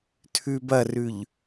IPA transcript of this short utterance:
tʰʉbɐrʉʎ

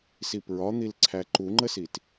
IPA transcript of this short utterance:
sipɹɒn̪il ǀʰæǃuŋ͡ǃəsit

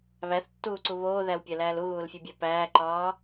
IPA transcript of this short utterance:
βæθtːuːǀu βoːðæwpʲælæːl uɣuːlfʲebʲæ pæːǃɒː

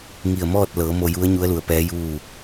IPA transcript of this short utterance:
ŋi˧˩ə̯mɔː˥˨t̚lɤː˩˧ mo˧ju˧˥ə̯ɲu˧˥ə̯lu˩˧ə̯ pɛː˧˥juː˥˨

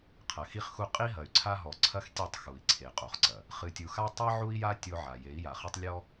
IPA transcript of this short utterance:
qʰɐ˨xi˦χxu˦ qʼi˦ɦɐ˨y̯ǀʰa˦ ɦɔ˨ǀʰɐ˦xtʲe˦˨tˤ xu˨i̯ǀʰe˨qʼo˨χǀɐ˨ | χɨ˨tʲu˨xa˦ tˤi˦ʕu˦i̯ja˦ tʲo˦ʕa˨ je˨˦i̯ja˨χɐ˦tˤ lʲɔ˦

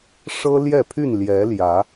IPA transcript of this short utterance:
ʂɤ˦ljɛ˥˨pʰy˥˨n ljɛ˨˦ljä˨˦

